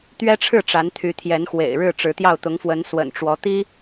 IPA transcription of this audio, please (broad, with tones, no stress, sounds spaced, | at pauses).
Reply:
t̪ ɥ ɛ˥ ʈ͡ʂʰ ɻ̩˥˩ ʈ͡ʂ a˧˥ n t̪ʰ y˧˥ t̪ʰ j ɛ˧˥ n x w ḛ˨˩ ɪ̯ ɻ ɻ̩˥˩ ʈ͡ʂ ɻ̩˧˥ t̪ j ɑ˥˩ ʊ̯ t̪ ʊ˧˥ ŋ f w ə˧˥ n s w ə̰˨˩ n ʈ͡ʂ w ɔ˧˥ t̪ i˥